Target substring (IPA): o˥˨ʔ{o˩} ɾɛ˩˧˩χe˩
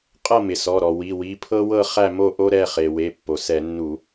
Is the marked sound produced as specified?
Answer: no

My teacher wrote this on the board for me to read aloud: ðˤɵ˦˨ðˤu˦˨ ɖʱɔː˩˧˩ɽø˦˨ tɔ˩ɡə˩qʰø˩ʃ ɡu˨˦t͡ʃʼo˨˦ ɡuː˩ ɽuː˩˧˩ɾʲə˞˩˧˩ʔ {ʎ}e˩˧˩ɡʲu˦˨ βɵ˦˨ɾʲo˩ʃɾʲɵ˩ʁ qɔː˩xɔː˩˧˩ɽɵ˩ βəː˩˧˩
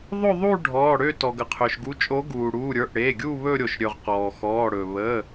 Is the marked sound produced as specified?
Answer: no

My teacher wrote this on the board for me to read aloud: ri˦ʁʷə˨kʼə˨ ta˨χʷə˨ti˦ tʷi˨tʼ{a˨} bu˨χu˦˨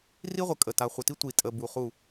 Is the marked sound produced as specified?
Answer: no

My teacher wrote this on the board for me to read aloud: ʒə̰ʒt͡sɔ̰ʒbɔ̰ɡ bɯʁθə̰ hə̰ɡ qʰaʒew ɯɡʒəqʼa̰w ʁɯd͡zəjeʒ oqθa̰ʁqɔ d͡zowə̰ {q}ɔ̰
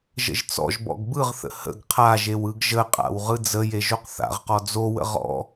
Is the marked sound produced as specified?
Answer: no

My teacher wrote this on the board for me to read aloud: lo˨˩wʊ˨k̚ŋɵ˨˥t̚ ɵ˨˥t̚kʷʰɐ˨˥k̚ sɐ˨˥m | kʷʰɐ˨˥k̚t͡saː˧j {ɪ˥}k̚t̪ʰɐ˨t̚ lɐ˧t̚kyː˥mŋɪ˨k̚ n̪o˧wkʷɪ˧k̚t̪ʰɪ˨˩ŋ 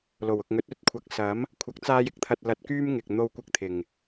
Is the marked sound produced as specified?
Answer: yes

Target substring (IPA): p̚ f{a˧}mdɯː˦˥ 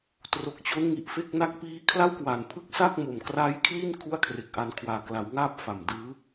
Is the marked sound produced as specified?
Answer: no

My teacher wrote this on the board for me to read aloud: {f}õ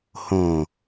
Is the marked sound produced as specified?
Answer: no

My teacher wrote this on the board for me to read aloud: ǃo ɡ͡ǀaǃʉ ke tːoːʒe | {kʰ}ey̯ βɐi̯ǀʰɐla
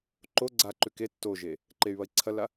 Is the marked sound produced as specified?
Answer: no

